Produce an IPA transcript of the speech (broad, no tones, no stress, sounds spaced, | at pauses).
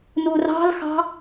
n u r ɑ̤ l x ɑ̤